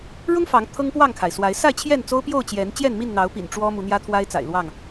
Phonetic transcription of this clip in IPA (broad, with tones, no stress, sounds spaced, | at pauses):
ɻ ʊ˦ ŋ f ɑ˨˦ ŋ t̪ʰ ɤ˦ ŋ p w ɑ˥˨ ŋ kʰ a˩ ɪ̯ s w a˨˦ ɪ̯ s a˥˨ ɪ̯ t͡ɕʰ j ɛ˥˨ n t͡s o˦ ʊ̯ p j o˥˨ ʊ̯ t͡ɕ j ɛ˨˦ n t͡ɕ j ɛ˥˨ n m i˥˨ n n̪ ɑ˨˦ ʊ̯ p ḭ˨˩ n ʈ͡ʂ w ɔ˦ m u˨˦ n̪ j ä˦ t̪ʰ w a˦ ɪ̯ t͡s a̰˨˩ ɪ̯ l w ɑ˥˨ ŋ